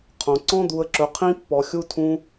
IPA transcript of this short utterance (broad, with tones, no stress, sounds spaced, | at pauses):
qʰ õ˧ ǀ ɔ̃˦ d̪ u˧ ə̯ ǁ ɵ˧ qʰ ĩ˦ pː ɔ˧ xʲ u˦ tʰ ũ˦